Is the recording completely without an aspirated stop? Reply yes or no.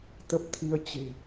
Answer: no